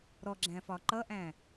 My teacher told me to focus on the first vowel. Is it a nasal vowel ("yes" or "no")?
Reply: no